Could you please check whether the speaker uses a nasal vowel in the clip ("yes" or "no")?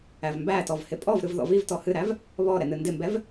no